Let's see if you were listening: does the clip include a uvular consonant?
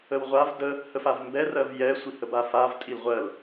yes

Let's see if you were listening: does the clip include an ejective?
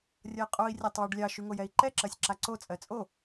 yes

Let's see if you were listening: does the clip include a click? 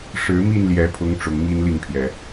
no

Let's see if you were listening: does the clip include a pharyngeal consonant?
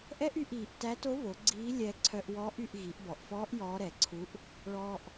no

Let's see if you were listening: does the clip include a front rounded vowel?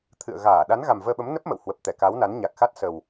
no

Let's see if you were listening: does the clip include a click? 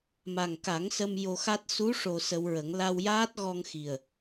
no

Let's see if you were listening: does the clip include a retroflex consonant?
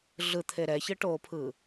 yes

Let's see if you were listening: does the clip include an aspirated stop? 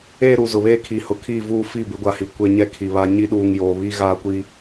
yes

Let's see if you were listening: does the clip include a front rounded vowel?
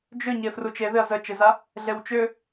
yes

